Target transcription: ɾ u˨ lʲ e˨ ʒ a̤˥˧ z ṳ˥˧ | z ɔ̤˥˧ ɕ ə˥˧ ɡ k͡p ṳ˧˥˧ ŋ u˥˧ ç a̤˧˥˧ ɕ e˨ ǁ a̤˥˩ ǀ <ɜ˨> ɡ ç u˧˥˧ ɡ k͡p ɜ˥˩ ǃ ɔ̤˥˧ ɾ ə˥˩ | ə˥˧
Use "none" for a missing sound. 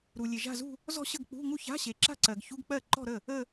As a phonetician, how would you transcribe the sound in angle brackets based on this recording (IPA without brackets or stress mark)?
ɜ˨